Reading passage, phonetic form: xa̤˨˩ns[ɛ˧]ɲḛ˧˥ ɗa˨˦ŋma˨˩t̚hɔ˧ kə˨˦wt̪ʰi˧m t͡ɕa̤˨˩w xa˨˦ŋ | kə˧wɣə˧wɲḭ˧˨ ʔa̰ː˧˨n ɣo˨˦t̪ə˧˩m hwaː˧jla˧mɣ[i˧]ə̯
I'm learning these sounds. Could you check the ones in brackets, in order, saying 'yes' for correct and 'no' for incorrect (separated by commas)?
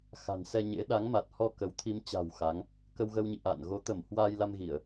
yes, no